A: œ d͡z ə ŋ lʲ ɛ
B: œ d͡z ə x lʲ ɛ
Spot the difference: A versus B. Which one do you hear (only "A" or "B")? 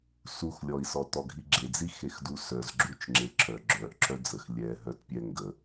B